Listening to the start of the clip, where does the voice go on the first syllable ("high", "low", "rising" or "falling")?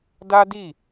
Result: high